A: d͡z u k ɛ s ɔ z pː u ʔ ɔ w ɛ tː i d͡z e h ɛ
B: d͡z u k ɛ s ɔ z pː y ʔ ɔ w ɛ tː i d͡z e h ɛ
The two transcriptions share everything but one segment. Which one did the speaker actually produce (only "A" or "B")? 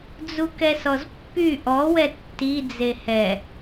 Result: B